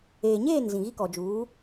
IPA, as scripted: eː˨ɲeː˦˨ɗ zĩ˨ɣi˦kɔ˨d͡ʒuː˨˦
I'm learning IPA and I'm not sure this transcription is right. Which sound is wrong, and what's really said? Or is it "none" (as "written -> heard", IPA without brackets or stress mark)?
ɗ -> n